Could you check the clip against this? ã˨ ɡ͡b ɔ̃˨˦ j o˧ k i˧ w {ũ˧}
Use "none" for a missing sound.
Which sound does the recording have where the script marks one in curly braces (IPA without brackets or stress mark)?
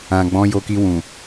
ũ˨